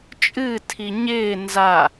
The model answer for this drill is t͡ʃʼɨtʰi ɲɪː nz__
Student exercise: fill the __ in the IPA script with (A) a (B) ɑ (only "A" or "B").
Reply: A